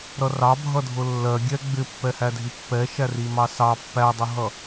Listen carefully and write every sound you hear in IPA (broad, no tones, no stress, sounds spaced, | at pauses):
ɾ ʌ r ɑ bʱ ʌ dʱ ʊ lː ɜ ɡʲ ɛ ɡ͡b ɪ pː ɛ h æ dʱ i pː ɛ ʃ æ r i m ɑ s ɑ pː æ dˤ ʊ ɦ ʌ